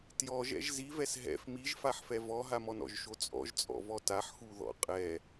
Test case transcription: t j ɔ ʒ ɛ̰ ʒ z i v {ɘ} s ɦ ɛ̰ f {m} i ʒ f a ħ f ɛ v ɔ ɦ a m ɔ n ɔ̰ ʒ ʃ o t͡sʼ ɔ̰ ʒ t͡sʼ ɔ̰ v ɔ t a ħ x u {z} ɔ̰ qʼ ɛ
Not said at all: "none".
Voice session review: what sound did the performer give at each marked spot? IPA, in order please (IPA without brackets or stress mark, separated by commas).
ɛ, m, ð